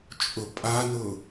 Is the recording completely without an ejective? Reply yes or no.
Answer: no